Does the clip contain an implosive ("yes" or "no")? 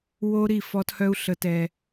no